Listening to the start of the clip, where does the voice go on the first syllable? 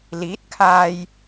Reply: rising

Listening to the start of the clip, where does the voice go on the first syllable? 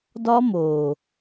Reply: high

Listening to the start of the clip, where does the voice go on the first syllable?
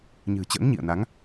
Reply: low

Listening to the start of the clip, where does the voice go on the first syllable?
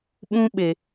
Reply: high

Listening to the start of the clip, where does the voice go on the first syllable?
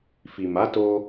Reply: low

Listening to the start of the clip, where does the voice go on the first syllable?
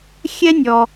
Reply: high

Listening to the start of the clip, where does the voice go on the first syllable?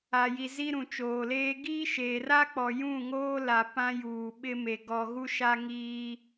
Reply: low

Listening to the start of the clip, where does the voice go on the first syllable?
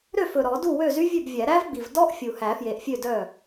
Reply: falling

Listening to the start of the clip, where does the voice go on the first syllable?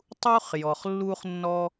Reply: high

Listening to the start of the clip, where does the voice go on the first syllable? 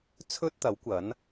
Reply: high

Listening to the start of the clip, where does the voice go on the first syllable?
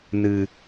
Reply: low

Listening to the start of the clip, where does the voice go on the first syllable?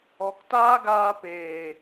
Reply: low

